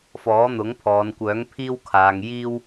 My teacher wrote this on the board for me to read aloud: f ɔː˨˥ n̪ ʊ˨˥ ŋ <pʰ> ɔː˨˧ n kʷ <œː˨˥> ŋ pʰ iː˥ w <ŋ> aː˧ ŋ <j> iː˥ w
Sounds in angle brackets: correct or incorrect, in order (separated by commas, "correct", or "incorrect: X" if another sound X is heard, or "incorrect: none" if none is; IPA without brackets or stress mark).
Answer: correct, correct, incorrect: kʰ, correct